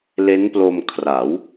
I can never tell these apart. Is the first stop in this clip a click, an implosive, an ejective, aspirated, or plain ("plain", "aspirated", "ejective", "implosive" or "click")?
plain